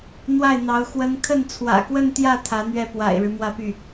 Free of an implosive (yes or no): yes